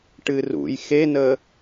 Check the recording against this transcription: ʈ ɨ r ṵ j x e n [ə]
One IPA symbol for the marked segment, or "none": ə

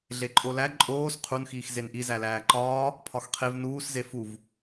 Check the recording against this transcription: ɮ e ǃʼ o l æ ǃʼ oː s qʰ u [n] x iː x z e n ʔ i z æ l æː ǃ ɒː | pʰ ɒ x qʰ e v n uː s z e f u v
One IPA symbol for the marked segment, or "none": n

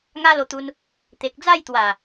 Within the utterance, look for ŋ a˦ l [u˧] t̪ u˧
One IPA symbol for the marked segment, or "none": o˧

